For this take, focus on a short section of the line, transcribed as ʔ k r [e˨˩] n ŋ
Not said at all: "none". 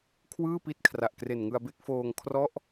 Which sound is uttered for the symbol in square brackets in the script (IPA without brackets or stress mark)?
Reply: e˨˩